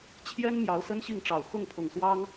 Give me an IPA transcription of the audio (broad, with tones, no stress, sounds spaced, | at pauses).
t͡ɕʰ j ɛ˥ n m j ɑ˧˥ ʊ̯ s ə˥ n ɕ i˥˩ ŋ ʈ͡ʂ ɑ˨˩ ʊ̯ x ʊ˥˩ ŋ pʰ ʊ˨˩ ŋ s w ɑ˥ ŋ